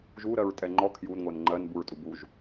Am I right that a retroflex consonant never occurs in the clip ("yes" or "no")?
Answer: yes